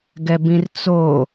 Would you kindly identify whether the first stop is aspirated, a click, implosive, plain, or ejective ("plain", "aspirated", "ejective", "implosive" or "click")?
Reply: plain